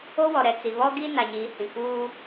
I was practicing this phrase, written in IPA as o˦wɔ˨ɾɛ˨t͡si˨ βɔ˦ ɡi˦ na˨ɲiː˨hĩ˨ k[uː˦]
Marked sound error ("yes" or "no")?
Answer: no